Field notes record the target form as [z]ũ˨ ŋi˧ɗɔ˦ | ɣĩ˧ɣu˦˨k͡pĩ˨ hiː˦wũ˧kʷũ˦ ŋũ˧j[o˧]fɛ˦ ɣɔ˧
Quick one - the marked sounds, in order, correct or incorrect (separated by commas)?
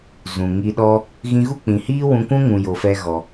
correct, correct